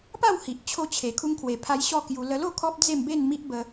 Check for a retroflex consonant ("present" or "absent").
absent